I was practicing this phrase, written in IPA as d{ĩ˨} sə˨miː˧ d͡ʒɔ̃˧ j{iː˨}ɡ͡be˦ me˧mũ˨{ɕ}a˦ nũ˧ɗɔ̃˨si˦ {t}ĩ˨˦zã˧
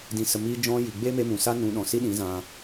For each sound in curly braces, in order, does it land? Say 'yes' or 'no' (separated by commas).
yes, no, no, no